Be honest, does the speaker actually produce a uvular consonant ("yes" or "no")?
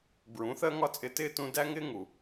no